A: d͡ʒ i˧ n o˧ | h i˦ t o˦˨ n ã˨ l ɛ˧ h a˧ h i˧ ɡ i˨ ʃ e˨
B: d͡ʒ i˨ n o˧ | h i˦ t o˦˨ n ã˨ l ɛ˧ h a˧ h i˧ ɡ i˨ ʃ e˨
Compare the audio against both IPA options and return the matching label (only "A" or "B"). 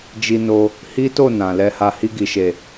A